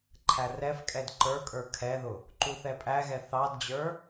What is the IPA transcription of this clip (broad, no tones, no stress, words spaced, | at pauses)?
ǃʰærɛfkʼɛd ǃə˞kʼə˞ kʰɛðʊ | ǃuθɛpʼæɣɛ θɑdd͡ʑə˞